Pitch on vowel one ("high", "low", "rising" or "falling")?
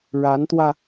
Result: rising